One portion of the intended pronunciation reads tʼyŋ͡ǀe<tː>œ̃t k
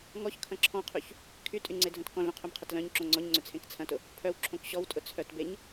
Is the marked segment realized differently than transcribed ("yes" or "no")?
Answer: yes